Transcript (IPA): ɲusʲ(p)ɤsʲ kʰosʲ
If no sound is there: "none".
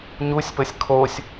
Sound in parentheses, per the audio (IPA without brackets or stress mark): p